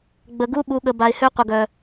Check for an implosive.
present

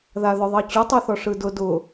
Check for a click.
absent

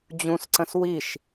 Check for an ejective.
absent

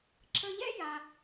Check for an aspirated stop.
absent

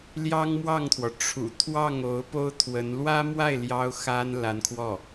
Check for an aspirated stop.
present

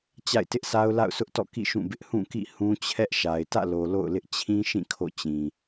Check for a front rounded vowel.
absent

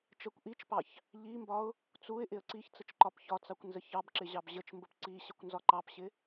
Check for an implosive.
absent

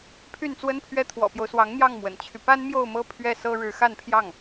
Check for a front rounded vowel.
present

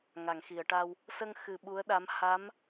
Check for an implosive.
present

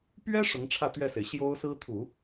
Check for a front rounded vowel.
absent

